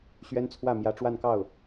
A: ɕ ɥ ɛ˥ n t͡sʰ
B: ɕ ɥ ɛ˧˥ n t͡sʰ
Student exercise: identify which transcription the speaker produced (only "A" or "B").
A